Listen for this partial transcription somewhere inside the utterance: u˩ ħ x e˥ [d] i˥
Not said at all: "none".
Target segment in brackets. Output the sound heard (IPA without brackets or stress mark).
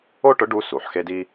d